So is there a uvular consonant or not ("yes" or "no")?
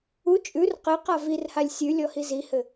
yes